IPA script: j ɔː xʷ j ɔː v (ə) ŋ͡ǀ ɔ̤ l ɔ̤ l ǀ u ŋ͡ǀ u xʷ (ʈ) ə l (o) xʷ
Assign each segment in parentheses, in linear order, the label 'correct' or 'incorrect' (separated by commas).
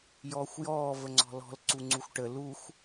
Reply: correct, correct, incorrect